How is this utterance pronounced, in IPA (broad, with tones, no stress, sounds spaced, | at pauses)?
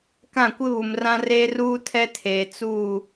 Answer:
k ã˦˨ kʷ ɪ˦ β u˨ m r ã˦ r e˦ r uː˦ tʰ ɛ˦ tʰ eː˨ t͡s u˦˨